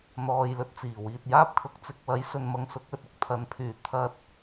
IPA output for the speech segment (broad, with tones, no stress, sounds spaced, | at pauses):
n̪ ɔː˧ j l ɵ˧ t̚ t͡s iː˨˩ w iː˨ t̚ j aː˥ p̚ kʰ ʊ˨˥ k̚ t͡s ɪ˨ k̚ w ɐ˨˥ j s ɵ˨ n m ɐ˧ ŋ s ʊ˨˥ k̚ ɵ˨ t̚ ɪ˧ k̚ t̪ʰ ɐ˨˥ n pʰ yː˨˩ t̪ʰ ɐ˧ t̚